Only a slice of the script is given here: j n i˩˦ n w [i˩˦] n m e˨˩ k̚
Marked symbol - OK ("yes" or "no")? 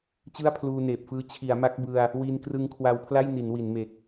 yes